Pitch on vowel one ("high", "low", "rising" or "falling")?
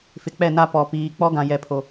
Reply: low